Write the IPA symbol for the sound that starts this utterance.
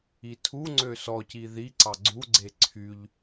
i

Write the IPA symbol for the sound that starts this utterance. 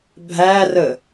bʱ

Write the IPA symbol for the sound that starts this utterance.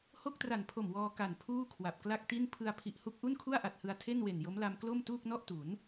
h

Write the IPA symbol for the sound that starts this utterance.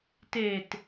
t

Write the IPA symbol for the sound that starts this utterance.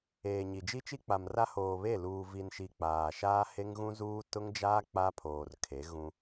eː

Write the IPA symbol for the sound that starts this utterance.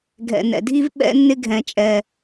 ɡʱ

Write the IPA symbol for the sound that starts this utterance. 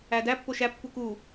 æ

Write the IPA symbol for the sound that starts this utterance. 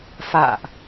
f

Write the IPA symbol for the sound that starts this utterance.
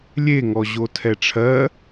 lʲ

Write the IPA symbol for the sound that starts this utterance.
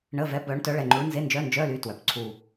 ɳ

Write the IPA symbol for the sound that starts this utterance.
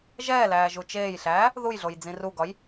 ʒ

